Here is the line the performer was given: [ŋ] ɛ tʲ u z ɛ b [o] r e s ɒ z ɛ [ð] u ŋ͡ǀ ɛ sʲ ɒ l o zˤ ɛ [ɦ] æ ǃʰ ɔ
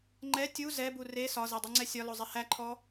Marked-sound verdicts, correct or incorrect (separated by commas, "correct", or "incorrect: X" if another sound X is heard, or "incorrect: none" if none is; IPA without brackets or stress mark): incorrect: ŋ͡ǃ, incorrect: u, incorrect: dˤ, incorrect: h